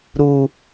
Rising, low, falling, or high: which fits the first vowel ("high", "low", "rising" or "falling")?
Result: high